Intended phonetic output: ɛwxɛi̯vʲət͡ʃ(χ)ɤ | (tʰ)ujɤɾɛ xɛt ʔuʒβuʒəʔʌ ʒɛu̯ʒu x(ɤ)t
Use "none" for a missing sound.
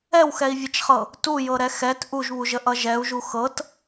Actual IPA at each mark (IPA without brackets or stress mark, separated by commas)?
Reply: χ, t, ɤ